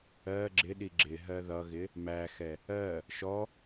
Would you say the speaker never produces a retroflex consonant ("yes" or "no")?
yes